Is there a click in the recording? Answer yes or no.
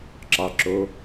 yes